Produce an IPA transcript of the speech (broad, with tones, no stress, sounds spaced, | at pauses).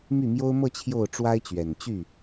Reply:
m y˥˩ m j o˥ ʊ̯ m ɤ˥˧ t͡ɕʰ j o˥˩ ʊ̯ ʈ͡ʂ w a˥ ɪ̯ t͡ɕ ɥ ɛ˨˩ n t͡ɕ y˥˩